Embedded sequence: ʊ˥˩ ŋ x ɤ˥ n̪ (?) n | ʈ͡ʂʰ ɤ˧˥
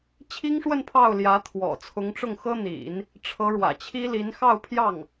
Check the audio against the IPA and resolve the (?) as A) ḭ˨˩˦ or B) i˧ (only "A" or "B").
A